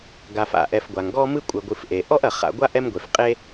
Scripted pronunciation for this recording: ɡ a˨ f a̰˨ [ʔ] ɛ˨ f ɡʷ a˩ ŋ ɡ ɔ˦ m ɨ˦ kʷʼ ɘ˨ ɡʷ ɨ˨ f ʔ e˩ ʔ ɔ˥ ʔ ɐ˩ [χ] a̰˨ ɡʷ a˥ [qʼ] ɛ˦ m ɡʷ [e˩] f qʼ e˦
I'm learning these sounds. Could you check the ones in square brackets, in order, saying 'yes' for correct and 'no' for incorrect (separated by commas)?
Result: yes, yes, no, yes